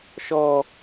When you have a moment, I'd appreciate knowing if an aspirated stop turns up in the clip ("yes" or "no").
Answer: no